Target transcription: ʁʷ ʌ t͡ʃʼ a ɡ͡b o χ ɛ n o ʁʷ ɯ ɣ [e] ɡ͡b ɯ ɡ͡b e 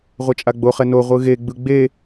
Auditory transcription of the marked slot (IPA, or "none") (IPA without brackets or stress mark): e